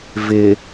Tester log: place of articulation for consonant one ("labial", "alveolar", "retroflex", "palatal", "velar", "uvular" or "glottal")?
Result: labial